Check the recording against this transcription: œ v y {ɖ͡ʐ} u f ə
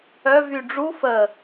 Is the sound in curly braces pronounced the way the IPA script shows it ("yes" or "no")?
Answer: yes